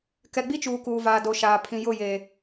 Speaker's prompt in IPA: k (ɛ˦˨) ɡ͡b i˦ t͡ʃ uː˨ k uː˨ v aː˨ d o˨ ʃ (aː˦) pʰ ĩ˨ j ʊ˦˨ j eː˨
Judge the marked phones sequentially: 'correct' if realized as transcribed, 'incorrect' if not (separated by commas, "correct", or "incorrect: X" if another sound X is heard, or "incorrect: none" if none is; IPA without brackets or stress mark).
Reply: incorrect: ɛ˨, incorrect: aː˨